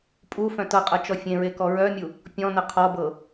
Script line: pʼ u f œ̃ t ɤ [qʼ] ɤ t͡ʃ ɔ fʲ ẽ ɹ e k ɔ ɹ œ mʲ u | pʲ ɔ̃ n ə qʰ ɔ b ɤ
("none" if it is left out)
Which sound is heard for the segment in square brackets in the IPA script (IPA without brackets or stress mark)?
qʼ